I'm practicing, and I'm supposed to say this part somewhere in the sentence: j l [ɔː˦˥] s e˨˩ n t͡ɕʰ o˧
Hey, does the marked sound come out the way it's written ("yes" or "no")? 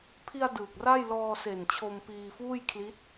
no